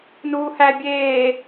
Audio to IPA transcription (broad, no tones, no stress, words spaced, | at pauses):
nuːhæ bʲeː